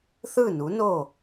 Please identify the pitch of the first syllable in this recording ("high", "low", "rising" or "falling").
falling